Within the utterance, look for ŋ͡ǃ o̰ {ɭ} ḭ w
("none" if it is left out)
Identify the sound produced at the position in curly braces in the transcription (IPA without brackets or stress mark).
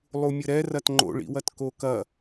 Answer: ɭ